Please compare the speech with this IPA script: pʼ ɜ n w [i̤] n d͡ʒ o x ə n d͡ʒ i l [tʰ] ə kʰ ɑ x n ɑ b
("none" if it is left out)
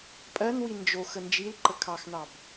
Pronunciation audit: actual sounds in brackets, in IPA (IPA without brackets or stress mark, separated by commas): i, ǃ